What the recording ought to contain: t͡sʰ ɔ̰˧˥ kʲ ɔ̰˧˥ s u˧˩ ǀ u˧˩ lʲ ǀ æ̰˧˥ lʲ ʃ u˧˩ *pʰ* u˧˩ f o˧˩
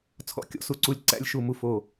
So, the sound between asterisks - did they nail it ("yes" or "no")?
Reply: no